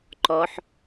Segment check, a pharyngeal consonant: present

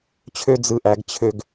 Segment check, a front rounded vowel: present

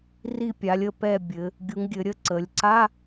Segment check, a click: present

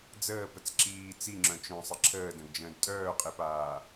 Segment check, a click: present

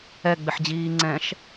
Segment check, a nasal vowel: present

